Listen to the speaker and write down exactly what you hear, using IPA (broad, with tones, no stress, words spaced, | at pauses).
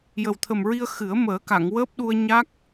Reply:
jə˨˩wt̪ʰə˨˩mɹi˧ə̯ xɨ˨˩˦ə̯ məː˨˩˦ka˨˩˨ŋwəː˦˥p̚ɗu˧ə̯ ɲa˦˥k̚